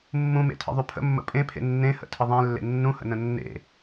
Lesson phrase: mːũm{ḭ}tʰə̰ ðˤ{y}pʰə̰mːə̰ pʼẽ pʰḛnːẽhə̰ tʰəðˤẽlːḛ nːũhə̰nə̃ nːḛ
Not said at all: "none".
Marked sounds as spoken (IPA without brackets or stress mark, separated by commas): ḛ, y